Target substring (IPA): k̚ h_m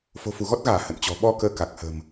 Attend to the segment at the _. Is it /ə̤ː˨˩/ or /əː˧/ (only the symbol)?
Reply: ə̤ː˨˩